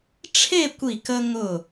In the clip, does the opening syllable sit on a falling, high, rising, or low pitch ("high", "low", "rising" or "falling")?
falling